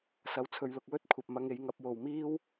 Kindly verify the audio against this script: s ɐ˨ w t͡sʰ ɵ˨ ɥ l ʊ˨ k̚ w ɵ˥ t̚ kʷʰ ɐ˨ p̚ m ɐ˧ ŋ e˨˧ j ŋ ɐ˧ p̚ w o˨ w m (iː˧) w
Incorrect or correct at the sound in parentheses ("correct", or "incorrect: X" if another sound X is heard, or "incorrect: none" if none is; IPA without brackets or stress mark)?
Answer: incorrect: iː˥